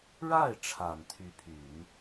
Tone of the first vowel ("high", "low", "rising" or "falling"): falling